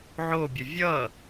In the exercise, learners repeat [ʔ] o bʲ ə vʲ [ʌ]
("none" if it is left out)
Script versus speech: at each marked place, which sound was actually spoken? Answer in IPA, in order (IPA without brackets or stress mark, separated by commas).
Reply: ʕ, ʌ